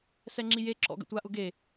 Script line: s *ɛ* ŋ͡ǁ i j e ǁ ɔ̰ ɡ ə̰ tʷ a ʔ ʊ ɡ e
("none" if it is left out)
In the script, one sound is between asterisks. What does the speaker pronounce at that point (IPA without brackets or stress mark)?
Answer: ɛ